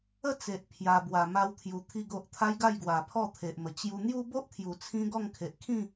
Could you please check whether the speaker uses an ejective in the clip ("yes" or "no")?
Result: no